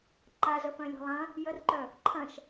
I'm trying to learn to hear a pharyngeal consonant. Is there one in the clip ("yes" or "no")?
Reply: no